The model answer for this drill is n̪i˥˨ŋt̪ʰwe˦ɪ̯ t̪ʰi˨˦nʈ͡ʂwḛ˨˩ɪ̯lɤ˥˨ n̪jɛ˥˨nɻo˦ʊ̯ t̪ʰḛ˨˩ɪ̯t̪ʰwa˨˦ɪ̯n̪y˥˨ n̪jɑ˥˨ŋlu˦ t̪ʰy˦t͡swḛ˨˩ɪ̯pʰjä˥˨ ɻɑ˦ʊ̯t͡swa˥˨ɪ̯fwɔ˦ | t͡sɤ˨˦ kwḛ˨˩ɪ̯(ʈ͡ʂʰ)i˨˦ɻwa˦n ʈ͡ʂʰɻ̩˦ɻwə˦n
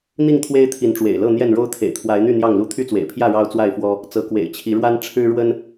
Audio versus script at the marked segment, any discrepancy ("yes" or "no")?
yes